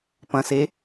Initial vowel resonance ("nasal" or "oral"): nasal